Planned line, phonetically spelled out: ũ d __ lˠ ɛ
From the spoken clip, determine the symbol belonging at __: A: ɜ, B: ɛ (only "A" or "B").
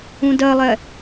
A